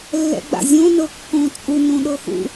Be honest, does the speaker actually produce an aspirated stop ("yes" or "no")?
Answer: no